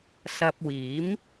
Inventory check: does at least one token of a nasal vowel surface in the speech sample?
no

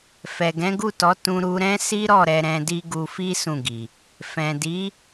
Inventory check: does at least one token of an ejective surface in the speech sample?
no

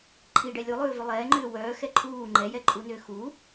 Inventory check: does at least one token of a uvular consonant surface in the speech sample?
no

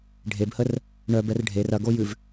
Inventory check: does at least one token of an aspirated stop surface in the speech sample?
no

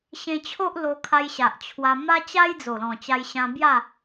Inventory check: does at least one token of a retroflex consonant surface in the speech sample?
no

